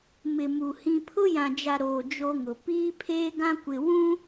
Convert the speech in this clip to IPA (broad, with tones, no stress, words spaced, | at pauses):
mɪ˨mu˨ hĩ˨pʰʊ˦jã˨d͡ʒa˨ ɾoː˨ d͡ʒo˦ŋʊ˨ piː˦pʰeː˦ɡã˦kʷɪ˨ wũ˦